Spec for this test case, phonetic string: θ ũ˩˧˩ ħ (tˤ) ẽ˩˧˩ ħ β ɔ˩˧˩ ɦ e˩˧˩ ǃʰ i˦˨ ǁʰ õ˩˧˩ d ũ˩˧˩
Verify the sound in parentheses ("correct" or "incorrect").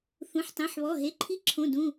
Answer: correct